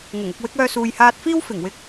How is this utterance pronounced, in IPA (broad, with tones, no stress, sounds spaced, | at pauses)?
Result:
ŋ ʊ˨˩ ŋ ʊ˧ k̚ w ɪ˨˥ k̚ œː˧ s uː˨ j h aː˧ t̚ f iː˥ w f ɪ˨˩ ŋ w ɪ˧ k̚